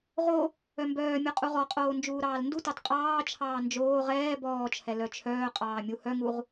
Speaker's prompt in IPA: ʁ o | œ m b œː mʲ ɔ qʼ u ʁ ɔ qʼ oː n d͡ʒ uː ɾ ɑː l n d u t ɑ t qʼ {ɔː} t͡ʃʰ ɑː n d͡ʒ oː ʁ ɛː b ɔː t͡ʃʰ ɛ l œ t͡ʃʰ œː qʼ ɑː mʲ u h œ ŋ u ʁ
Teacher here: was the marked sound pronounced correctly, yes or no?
no